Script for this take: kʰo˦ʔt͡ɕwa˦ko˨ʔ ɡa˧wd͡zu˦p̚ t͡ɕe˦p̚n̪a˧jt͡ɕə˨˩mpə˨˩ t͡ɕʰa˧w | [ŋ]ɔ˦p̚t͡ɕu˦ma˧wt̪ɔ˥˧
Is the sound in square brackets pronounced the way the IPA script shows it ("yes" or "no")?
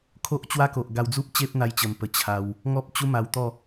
yes